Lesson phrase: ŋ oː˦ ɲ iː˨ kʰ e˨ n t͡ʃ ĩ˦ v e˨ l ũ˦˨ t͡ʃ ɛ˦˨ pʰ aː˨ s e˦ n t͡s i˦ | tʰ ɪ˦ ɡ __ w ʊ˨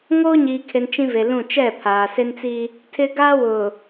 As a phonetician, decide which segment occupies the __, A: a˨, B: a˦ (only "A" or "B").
B